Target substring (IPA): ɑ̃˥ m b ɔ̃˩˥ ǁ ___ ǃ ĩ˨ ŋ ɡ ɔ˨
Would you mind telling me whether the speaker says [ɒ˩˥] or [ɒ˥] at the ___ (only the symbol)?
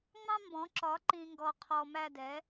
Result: ɒ˩˥